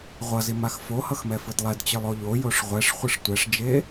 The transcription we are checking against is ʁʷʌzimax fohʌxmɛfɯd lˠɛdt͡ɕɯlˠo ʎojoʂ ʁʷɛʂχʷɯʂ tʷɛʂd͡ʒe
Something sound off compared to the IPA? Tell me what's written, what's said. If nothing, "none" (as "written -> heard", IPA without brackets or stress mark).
none